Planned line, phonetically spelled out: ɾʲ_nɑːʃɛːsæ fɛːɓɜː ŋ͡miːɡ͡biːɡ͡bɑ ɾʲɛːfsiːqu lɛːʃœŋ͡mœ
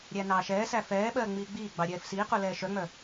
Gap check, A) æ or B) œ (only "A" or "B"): A